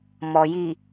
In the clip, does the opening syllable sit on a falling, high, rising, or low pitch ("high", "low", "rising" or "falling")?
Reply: low